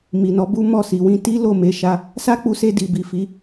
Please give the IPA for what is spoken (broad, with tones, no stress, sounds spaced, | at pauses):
m i˨ n ɔ˨˦ b u˦ m ɔ˦˨ s i˨ w ĩ˧ t i˦ l o˦˨ m e˨˦ ʃ a˧ | s a˦ k͡p u˧ s e˧ d i˨ b i˨ f i˨˦